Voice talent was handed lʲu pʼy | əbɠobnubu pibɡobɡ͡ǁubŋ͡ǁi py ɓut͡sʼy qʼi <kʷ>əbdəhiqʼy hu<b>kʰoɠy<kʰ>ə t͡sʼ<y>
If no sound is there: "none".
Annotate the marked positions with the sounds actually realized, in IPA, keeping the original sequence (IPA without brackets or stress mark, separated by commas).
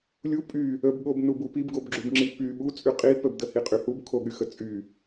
p, b, x, y